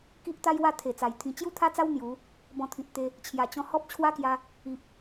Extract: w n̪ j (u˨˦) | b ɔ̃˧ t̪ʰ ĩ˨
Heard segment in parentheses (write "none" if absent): u˨˦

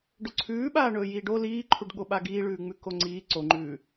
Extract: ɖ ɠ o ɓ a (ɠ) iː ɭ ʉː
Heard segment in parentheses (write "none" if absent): ɡ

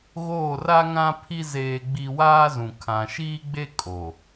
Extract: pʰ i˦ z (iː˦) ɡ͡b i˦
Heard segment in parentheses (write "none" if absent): eː˦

